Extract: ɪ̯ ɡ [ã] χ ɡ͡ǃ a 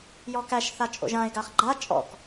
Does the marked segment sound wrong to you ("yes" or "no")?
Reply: yes